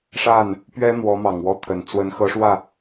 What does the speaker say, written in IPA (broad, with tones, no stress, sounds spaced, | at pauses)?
ʂ a˥˩ n | p ɥ ɛ˥ n̪ w ɔ˧˥ m ɑ˨˩ ŋ w ɔ˥˩ t̪ʰ ə˨˩ n t͡s w ə˧˥ n x ɤ˧˥ ʂ w ä˥˩